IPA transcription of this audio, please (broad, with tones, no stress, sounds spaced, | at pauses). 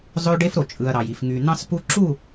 zˤ ø˦ ɖ e˦ f ɾ o˨ t͡ʃʼ ɯ˨ ɐ̯ ɾ ɑ˨ j i˨ f ŋ y˨ n̪ ɑ̃˦ s p u˦ ǁ u˦˨